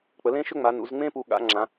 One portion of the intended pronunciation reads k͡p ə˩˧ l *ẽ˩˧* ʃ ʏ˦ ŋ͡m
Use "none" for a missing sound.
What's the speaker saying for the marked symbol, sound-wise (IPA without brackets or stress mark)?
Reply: ẽ˦